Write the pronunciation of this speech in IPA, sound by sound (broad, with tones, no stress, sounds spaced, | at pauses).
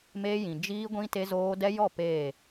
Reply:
m eː˦ j ĩ˨ d͡ʒ iː˦ ɡʷ ĩ˦ t e˦ z oː˦ d ɛ˦ j ɔ˦˨ p eː˦˨